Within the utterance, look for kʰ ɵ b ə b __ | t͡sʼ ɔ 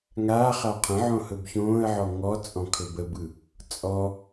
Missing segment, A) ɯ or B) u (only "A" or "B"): A